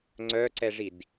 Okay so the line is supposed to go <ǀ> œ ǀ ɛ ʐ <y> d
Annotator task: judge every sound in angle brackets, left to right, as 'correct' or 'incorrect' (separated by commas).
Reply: incorrect, incorrect